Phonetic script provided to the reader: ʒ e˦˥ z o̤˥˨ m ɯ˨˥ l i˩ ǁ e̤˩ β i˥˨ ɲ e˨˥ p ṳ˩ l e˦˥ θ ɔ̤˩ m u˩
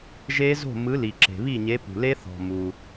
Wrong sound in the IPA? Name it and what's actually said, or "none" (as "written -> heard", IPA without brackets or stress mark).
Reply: none